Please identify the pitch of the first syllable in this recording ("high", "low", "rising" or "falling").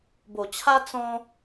low